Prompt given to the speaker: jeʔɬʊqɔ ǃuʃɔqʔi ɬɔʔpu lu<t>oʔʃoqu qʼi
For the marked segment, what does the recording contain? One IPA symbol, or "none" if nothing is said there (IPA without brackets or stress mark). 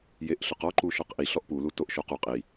t